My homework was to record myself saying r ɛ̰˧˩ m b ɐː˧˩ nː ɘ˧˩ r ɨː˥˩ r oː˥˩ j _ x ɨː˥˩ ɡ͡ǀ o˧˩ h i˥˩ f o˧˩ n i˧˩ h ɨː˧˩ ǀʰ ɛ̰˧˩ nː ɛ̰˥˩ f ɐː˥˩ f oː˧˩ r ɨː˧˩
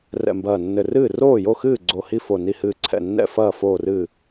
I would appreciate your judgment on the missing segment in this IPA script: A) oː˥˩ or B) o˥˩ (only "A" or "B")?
B